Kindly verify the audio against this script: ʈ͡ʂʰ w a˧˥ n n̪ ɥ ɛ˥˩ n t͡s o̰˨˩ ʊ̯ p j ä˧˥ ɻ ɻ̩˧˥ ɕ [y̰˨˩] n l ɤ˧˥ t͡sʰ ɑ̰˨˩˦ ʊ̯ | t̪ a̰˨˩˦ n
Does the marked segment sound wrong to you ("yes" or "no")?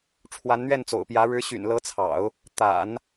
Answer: no